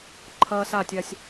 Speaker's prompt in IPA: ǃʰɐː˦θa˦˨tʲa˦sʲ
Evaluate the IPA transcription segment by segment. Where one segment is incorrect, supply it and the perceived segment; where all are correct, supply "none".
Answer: θ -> s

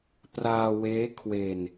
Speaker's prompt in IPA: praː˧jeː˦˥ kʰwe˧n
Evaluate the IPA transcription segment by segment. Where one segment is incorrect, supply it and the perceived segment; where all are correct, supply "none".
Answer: j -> w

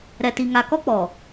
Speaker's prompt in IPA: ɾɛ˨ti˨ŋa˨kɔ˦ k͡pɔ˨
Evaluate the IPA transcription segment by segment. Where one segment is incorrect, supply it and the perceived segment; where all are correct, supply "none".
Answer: none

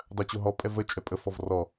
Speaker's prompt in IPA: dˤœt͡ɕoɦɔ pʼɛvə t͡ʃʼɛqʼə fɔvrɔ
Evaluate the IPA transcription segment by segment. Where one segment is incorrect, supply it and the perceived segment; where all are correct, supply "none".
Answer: qʼ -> pʼ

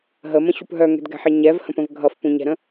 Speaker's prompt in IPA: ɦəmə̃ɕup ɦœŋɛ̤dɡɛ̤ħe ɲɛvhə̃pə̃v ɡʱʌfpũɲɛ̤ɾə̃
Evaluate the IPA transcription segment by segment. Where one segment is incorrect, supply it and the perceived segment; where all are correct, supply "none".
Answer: none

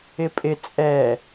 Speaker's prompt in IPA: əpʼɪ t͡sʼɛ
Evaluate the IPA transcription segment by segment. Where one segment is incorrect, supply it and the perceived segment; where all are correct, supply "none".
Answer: ə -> ɪ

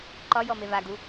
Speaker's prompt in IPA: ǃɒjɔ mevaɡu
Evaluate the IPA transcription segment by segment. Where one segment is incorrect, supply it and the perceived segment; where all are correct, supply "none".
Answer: none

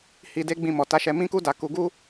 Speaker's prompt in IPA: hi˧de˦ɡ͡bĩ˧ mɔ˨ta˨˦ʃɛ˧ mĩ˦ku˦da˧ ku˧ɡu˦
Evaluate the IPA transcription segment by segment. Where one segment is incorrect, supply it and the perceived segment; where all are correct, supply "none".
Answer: none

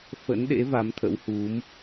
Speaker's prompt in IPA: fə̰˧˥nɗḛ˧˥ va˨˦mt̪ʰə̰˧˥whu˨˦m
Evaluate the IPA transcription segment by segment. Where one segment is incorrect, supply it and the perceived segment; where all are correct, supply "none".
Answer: none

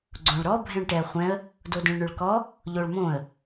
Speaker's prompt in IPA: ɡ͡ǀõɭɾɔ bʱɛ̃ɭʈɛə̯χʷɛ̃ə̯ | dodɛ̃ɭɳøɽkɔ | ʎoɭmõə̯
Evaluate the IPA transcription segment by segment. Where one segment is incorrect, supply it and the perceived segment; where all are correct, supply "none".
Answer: ɽ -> ɭ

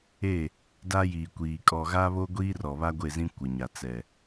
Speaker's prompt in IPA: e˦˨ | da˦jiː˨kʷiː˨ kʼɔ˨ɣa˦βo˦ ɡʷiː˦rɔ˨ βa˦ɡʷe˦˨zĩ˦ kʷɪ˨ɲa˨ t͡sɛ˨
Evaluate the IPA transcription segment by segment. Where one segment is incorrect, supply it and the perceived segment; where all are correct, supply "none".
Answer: none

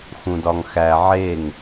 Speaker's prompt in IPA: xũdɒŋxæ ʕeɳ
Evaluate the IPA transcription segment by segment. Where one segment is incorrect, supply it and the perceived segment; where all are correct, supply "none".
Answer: ɳ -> ŋ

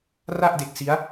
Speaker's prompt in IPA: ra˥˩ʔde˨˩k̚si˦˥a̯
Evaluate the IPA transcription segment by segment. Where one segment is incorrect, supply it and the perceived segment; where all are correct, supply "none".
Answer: none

